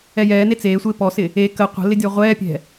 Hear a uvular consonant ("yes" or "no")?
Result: yes